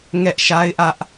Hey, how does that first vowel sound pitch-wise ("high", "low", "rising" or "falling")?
high